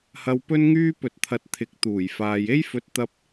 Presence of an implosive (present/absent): absent